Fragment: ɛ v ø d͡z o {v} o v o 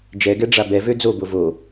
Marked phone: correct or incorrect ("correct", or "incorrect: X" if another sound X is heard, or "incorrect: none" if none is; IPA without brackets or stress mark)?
incorrect: b